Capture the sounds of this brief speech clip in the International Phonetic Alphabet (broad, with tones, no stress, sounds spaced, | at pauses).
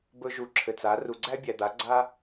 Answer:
b ɵ˧ ʒ u˨ ǁʰ ɘ˨ t͡s a˨˦ r u˨ ɡ͡ǀ æ˦ bʲ æ˨ d̪ a˨˦ ɡ͡ǀ a˦